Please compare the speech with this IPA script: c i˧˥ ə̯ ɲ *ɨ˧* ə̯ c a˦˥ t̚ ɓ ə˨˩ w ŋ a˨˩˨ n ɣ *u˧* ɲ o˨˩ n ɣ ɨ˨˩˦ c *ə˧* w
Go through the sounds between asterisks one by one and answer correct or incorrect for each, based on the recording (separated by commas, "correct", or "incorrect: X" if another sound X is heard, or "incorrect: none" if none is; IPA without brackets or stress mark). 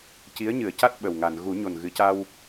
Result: incorrect: ɨ˨˩˦, incorrect: u˨˩˦, incorrect: a˧